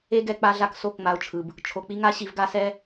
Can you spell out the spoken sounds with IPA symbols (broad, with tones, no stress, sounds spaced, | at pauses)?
e˦ ɡ ɛ˧ k͡p a˧ ɮ a˧ k s o˦˨ k ŋ͡m a˧ ʊ̯ t͡ʃʰ ɯ˨ b | t͡ʃʰ o˨ k͡p i˦ ŋ a˦ ɕ i˧ v ɡ a˦ s ɛ˦